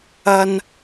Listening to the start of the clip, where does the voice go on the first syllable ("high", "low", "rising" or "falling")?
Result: low